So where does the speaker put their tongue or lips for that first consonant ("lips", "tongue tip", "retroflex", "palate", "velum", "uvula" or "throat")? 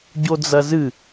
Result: palate